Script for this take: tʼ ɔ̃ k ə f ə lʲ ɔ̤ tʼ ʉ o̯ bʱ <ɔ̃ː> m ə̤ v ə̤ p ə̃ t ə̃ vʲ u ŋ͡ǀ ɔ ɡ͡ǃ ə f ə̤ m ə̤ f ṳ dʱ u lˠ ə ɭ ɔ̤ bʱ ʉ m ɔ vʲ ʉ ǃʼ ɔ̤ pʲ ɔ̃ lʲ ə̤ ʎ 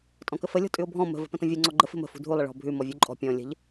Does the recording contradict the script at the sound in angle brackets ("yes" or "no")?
yes